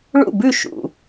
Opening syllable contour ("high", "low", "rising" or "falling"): falling